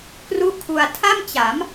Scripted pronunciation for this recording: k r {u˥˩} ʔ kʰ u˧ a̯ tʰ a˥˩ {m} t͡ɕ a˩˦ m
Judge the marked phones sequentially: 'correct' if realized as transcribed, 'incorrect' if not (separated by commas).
correct, correct